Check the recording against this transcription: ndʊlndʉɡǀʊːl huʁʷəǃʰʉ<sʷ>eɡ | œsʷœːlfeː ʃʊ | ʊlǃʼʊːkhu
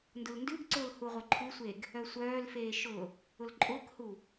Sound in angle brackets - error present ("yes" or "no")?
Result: no